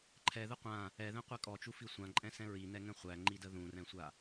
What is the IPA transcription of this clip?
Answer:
ǃʰ ɛ ð ə qʷ ã | ɛ ð ɛ̃ qʷ ɛ kʼ ɔ t͡ʃ u f i sʷ ã ǃʼ ɛ̃ s ɛ̃ ɹ i n ɛ ŋ ɛ̃ χʷ æ ŋ͡ǃ i d ə ð ũ r ɛ̃ sʷ a

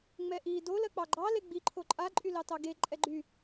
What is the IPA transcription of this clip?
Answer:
ŋ͡m ɛ ʔ i d o l ɜ k͡p ɑ ɡ͡ǃ ɑ l e ɡ͡b i ǃʰ o ǃʼ a ǃʼ y l ɑ t ɑ ɡ e ǃʼ ɛ ɡ͡ǃ y

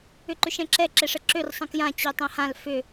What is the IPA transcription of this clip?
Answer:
ʏ ǃ ʏ ʃ ɛ̃ ǁ ɛ ǁ ɛ ʂ ə ǁ ø r sˤ ə̃ k j ã t͡ɕ ø tˤ ɛ̃ h ã l f ʏ

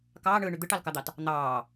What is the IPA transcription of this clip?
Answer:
k ɑː ɳ ɯː ɳ y d̪ ɯ ʈ ɑ l k ɑ d̪ ɑ t | n̪ ɑː

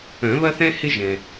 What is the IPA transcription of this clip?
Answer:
œ̃˨˩˦ β ɐ˥ θ ɛ̃˥ h ɪ˥ ʒ ɛ̃˩

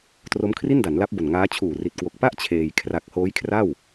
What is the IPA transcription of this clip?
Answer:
t r o˦˥ m kʰ r i˥˩ n d a˩˦ n l a˦˥ p̚ b o˨˩ n ŋ aː˦˥ t͡ɕʰ uː˨˩ r i˨˩ t̚ k w o˨˩ k̚ p a˥˩ ʔ t͡ɕʰ eː˧ j kʰ r a˨˩ k̚ h oː˦˥ j kʰ r a˥˩ w

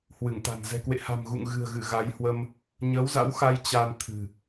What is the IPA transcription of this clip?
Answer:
h w ɨ˧˩ ŋ t̪ a̤˨˩ n z ɛ̤˨˩ k w ḛ˧˨ h a̤˨˩ m ɣ ṵ˧˨ ŋ ɣ ɨ̤˨˩ ə̯ ɣ ɨ˧˩ ɣ a˨˦ j h w ə˧ m | ɲ əː˨˦ w z a̰˧˥ w x a˧ j t͡ɕ a˧ n t̪ʰ ɨ̤˨˩

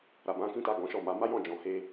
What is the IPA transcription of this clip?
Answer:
ɾ a˨ b ã˨˦ k ĩ˦ t a˦˨ ɡ ɔ̃˨˦ ʃ ɔ˦˨ m a˨˦ m a˦ j ɔ̃˦˨ d͡ʒ ɔ̃˨ h e˧

